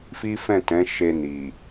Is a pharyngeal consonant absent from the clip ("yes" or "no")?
yes